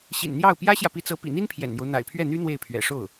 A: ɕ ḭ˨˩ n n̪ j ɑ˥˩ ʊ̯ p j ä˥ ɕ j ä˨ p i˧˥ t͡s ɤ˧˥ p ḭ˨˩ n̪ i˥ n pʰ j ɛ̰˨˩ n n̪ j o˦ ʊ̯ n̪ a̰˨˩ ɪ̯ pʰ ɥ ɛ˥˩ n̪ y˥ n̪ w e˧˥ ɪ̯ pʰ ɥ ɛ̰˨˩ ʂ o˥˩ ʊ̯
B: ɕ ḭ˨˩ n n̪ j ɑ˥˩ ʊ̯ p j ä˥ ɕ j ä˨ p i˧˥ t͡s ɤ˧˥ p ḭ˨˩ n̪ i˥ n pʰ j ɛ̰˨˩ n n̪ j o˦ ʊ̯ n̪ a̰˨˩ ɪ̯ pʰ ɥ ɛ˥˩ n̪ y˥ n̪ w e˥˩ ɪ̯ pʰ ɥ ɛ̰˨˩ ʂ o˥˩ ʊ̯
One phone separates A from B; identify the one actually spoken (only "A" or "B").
B